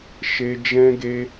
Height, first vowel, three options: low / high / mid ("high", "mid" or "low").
mid